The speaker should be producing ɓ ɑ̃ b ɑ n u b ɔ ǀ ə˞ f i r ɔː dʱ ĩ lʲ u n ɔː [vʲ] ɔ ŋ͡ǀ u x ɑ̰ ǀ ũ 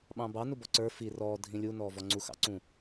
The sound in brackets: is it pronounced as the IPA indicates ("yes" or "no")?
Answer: no